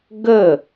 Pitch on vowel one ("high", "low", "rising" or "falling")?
falling